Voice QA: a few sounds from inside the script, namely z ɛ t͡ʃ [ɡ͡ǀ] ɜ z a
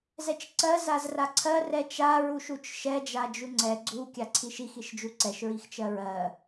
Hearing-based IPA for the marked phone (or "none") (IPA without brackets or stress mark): ǀ